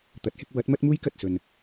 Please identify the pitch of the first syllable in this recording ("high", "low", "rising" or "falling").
rising